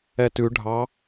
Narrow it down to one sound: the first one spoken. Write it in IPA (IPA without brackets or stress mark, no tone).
ɛ